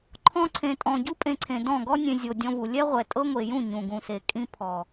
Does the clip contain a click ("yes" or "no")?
yes